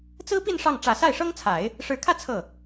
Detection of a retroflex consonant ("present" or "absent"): present